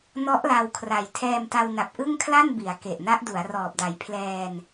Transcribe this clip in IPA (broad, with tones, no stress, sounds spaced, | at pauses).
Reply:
n ɔ˦˥ ʔ l a˧ w kʰ r a˨˩ j tʰ ɛː˧ m t a˧ w n a˨˩ p̚ ʔ ɯ˥˩ ŋ kʰ l a˥˩ n b i˩˦ a̯ k e˨˩ ʔ n a˦˥ ʔ d u˩˦ a̯ r ɔː˨˩ p̚ d a˨˩ j pʰ l ɛː˧ n